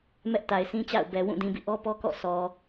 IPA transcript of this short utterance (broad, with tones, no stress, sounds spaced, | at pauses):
m ɛ˦ ʔ t a˨ ɪ̯ s ĩ˦ t͡ɕ a̰˦˨ ʊ̯ b ɛ˨ w ũ˦˨ d ĩ˨ b ḭ˦˨ ʔ ɔ˦ p ɔ˦ k ɔ̰˦˨ s ɔ˨